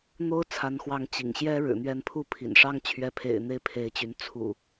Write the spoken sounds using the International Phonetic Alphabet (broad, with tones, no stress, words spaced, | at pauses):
n̪o˦ʊ̯t͡sʰa˨˦nxwɑ˨˦ŋ t͡ɕḭ˨˩ŋɕjɛ˦ ɻɻ̩˨˩n̪ɥɛ˥˨n pʰu˥˨pʰḭ˨˩nʂɑ˦ŋ t͡ɕʰɥɛ˨˦pʰḛ˨˩ɪ̯ n̪e˥˨ɪ̯pʰe˨˦ɪ̯t͡ɕy˨˦n t͡sʰṵ˨˩